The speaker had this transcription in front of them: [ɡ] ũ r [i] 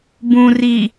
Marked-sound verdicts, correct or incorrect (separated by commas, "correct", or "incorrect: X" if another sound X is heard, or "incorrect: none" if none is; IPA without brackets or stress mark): incorrect: b, correct